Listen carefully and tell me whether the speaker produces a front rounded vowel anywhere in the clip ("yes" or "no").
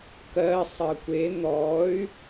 yes